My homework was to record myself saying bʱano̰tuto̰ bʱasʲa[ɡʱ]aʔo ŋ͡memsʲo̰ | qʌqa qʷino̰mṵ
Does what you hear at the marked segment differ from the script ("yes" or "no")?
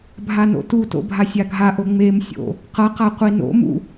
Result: no